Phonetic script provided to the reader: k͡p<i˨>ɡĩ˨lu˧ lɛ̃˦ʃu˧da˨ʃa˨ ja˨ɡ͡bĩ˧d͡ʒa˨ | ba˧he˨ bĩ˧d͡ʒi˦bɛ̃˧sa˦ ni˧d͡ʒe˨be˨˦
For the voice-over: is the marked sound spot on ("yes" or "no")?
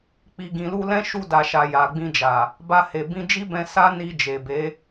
yes